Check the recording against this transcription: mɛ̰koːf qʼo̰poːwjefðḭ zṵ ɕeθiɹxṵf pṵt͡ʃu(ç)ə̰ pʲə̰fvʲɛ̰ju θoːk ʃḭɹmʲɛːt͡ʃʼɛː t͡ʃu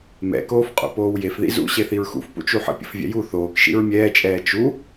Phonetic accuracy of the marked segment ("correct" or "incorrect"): incorrect